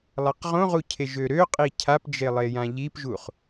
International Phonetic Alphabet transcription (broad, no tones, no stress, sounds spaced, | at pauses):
lˠ a q ʁ õ ʁ u cʰ e ʒ ø ɾ ø qʼ i cʰ a p d͡ʒ e lˠ e j ã ʎ i p ʒ u χ